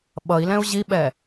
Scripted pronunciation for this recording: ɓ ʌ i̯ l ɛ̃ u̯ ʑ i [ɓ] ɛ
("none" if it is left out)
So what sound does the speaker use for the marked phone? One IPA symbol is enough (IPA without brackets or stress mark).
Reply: ɓ